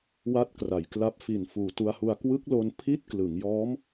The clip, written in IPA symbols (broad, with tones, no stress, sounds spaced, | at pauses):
w a˥˩ t̚ k r a˩˦ j k l a˦˥ p̚ f i˨˩ n f uː˨˩ t u˧ a̯ h u˧ a̯ k w ɯ˦˥ k̚ l o˧ n pʰ i˥˩ t̚ k l ɯ˩˦ ŋ j ɔː˦˥ m